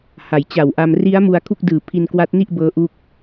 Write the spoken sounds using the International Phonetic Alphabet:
ha˩˦jt͡ɕa˨˩wʔa˧m ri˦˥a̯ mu˧a̯kʰu˥˩k̚dɯː˨˩ pʰi˧nkwa˦˥t̚ni˥˩ʔ bɤː˦˥ʔu˦˥k̚

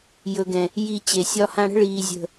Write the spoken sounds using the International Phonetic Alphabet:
jɵ˨ɡɛ̃˨ | ji˨ t͡ɕe˨sʲɒ˧ hã˧ɽə̤˦ ɭiː˨ zʲə̤˨

